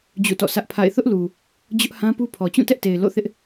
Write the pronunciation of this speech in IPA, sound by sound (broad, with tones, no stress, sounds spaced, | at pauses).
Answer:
d͡ʑ ṵ˦˨ t ɔ̰˦˨ s ä˦ ʔ pʰ a̰˦˨ ɪ̯ θ ʊ˦ ʔ l u˨ | d͡ʑ ʊ˦ ʔ h ã˦ p u˦ pʰ ɔ˨ t͡ɕ ũ˦˨ t ɛ˦ ʔ t e˨ ɪ̯ l o̰˦˨ θ ɪ˦ ʔ